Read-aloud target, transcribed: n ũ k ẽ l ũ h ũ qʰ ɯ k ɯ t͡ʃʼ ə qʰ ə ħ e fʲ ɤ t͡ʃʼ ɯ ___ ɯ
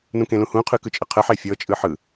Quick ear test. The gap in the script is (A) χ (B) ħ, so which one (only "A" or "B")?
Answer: B